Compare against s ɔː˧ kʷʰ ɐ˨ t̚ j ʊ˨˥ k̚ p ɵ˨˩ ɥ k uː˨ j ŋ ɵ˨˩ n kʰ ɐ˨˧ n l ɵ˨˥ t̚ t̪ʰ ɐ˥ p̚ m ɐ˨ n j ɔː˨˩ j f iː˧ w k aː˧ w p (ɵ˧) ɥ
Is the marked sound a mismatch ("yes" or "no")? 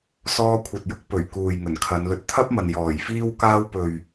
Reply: yes